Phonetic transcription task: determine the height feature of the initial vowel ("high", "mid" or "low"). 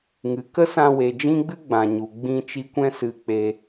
high